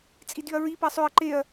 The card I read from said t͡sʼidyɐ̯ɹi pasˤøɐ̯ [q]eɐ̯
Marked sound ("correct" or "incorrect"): incorrect